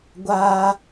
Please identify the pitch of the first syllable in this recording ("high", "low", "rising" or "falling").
high